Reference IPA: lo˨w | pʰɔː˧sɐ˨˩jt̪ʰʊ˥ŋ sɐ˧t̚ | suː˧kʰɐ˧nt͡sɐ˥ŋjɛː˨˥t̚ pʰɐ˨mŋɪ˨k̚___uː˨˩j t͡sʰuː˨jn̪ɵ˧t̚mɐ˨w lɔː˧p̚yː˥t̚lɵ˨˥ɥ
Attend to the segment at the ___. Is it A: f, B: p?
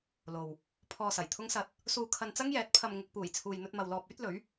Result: B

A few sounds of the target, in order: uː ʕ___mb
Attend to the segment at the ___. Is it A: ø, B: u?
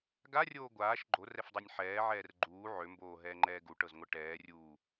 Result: A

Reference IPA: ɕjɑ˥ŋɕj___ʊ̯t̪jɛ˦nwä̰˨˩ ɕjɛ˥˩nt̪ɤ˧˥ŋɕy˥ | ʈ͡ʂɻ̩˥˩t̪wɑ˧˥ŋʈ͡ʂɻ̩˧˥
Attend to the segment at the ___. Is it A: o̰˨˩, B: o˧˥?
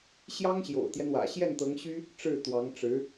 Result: A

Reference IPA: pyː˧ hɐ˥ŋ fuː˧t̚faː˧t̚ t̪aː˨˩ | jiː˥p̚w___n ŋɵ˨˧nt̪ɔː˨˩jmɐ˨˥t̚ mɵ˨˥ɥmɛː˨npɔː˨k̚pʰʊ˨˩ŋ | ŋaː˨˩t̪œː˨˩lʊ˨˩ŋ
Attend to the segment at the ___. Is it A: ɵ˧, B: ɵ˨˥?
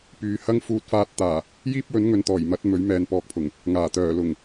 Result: B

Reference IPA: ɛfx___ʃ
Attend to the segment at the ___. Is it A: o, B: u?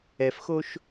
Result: A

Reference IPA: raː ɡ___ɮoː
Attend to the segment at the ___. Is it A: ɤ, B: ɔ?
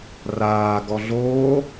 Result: B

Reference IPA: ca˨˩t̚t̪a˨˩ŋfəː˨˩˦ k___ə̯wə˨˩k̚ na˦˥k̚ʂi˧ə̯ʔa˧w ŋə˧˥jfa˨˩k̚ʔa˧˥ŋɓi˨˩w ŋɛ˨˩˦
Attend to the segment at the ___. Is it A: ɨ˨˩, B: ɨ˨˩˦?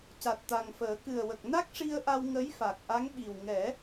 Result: A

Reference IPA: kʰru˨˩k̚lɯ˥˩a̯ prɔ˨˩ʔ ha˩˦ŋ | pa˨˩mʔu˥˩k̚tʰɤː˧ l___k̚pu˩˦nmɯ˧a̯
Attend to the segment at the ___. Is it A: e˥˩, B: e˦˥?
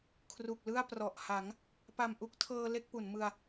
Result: A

